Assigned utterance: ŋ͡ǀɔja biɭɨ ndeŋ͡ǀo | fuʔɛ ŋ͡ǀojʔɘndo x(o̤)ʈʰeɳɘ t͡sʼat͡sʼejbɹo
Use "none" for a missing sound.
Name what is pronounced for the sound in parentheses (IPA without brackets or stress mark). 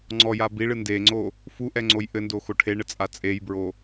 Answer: o